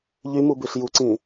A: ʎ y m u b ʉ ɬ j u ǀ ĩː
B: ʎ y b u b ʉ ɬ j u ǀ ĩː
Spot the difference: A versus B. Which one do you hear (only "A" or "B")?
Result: A